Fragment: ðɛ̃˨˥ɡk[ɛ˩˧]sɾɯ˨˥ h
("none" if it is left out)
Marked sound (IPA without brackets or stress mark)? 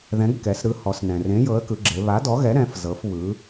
ɛ˩˧